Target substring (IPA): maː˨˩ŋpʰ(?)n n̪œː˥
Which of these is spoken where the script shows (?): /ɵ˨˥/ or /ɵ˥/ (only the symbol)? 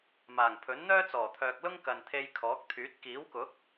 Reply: ɵ˨˥